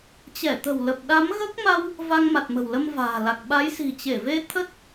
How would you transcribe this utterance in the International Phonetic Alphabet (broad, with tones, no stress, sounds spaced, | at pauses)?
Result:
t͡ɕ ɛ˧˩ t̪ ə̤˨˩ w l ə˨˩ p̚ ɗ a˨˦ m ɣ əː˦˥ k̚ m a˧ w | v a˧ ŋ m a˨˩ t̚ m ə̤˨˩ w l ə˧ m v a̤ː˨˩ l a˨˩ k̚ ɓ a˨˦ j s i̤˨˩ t͡ɕ e˧˩ v e˧ t̪ʰ ə˦˥ t̚